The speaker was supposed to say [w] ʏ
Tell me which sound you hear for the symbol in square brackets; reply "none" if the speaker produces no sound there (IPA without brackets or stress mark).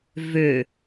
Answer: v